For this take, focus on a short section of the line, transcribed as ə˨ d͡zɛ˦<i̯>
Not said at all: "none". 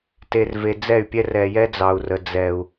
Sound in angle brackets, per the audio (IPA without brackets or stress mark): u̯